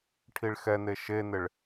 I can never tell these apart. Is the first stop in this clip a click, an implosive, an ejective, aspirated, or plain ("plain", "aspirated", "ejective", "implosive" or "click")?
aspirated